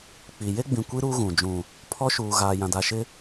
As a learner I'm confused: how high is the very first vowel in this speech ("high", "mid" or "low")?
high